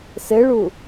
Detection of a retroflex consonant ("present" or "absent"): present